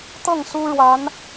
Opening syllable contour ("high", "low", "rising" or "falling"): falling